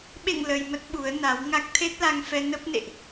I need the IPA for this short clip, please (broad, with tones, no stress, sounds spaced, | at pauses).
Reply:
ɓ ḛ˧˨ ŋ l ə˧ j m ə˦˥ t̚ ɓ u˨˦ ə̯ n a˨˦ w ŋ a˦˥ k̚ t̪ʰ e˦˥ t̚ l a˧ ŋ f ɛ˧ n ə˦˥ p̚ n ḛ˧˨ ʔ